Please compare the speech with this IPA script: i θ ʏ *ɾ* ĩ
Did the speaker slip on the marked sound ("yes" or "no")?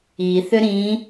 no